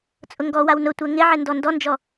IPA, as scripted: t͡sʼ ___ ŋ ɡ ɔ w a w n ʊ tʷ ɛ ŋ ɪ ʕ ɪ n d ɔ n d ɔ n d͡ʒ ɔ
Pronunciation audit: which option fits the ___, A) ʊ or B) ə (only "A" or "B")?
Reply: A